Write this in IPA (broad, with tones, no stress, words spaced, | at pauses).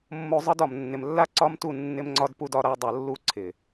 mːo˧zˤɤ˦dɒ˨m nːɪ˨mlːa˦ ǀɒ˦mtu˦˨ nːɪ˦mŋ͡ǀɒ˦dpu˦d ɒ˦ɾa˦ dˤɤ˨lːu˧ ǀʰɪ˨